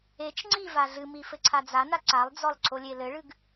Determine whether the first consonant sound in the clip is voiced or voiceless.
voiceless